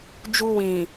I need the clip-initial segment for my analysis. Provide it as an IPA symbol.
d͡ʒ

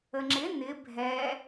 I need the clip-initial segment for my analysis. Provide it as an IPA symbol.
ə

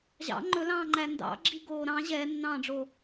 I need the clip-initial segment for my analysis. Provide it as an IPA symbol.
ʑ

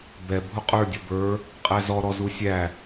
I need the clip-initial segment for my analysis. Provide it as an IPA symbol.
b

